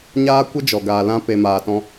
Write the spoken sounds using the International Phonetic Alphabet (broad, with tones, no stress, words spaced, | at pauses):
ɲaː˦kʷə˦d͡ʒɔ˨ ɡaː˨lã˧ pe˨ maː˨tɔ̃˧